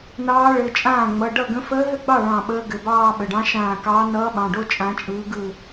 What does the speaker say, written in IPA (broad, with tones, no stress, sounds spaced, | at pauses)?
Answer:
n ɑː˧˥ ɭ ɘ˩˧˩ t͡ʃʼ ãː˥˩ ŋ͡m ʌ˩˧˩ ɖ ʌ˥˩ ɡ ə̃˧˥ f əː˧˥ ɦ ɘ˥˧ ɡ͡b ɑ˥˩ ɭ ɑ̃˧˩ ɓ əː˧˥ ɡ ɘ˩˧˩ b ɑː˥˧ ɓ ə˩˧˩ ɖ ɑ̃˧˥ ʃ ãː˧˩ k ɑː˧˥ n ʌː˧˥ ɓ ɑ̃˩˧˩ ɖ o˥˧ t͡ʃʼ ã˧˥ t͡ʃʼ ɯː˧˥ ɡ ɯ˥˧